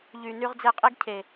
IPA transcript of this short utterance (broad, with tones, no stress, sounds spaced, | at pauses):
ʎ y˨ n y˧ ʁ d͡z e˧ qʼ i˦ ɡ cʰ e˨